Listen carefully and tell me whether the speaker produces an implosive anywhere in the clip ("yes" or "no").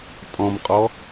no